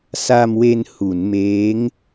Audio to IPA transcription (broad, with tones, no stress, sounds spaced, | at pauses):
s a˧ m w e˧ n h u˩˦ n m eː˦˥ ŋ